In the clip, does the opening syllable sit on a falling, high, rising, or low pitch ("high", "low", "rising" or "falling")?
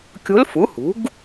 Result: rising